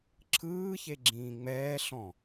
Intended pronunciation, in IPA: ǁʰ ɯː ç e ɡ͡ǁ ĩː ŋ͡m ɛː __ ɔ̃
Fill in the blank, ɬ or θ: ɬ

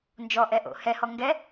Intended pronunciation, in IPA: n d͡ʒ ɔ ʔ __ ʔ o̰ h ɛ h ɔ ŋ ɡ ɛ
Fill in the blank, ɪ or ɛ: ɛ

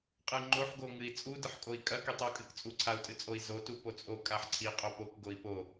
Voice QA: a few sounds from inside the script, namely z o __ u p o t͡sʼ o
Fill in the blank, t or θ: t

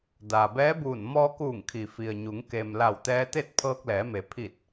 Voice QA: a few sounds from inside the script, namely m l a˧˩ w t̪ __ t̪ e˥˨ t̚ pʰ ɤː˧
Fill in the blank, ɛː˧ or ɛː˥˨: ɛː˧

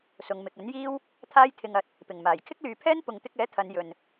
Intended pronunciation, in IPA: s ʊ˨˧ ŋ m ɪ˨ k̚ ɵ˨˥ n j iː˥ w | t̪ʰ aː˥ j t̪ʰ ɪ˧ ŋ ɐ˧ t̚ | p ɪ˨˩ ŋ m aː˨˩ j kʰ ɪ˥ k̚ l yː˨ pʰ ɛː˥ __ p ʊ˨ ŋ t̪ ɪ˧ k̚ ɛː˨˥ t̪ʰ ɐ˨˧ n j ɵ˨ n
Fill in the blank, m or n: n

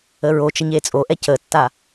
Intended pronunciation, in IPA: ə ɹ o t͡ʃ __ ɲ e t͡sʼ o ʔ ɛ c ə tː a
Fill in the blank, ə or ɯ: ə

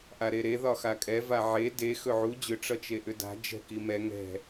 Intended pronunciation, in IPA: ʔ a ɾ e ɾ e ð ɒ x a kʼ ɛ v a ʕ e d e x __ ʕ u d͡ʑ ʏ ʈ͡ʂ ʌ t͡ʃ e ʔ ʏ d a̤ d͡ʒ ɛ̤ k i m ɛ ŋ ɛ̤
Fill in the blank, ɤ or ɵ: ɵ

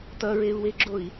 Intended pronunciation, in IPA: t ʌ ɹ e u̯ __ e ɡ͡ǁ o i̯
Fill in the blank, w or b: w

